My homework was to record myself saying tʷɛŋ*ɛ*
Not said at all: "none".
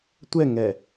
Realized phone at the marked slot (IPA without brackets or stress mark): ɛ